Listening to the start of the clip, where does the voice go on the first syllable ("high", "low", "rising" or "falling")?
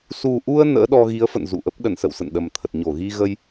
low